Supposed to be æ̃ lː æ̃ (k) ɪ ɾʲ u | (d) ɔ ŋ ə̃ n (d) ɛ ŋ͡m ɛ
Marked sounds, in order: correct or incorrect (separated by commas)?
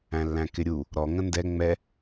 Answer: correct, incorrect, correct